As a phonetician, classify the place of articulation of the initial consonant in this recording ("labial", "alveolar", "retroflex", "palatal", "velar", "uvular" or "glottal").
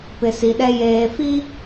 labial